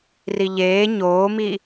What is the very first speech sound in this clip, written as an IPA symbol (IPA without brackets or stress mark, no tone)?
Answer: r